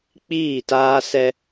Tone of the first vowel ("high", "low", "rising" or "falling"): falling